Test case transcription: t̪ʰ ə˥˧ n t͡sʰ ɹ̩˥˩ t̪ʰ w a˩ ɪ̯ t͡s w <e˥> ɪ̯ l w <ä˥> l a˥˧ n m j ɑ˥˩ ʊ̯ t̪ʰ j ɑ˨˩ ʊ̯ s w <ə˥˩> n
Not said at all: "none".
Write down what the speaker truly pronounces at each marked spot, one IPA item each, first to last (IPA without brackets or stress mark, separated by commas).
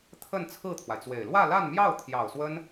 e˨˩, ä˥˧, ə˥